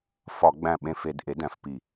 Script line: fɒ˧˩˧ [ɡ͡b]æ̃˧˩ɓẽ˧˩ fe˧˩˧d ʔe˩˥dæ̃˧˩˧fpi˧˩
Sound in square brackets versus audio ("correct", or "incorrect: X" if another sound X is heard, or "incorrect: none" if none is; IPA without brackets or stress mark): correct